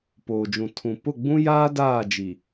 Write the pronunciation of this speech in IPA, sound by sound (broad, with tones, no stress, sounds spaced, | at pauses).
p oː˨ d͡ʒ ũ˨ tʰ ũ˨ p ʊ˦˨ ɡ͡b ũ˦ j aː˦ d aː˦˨ d͡ʒ i˨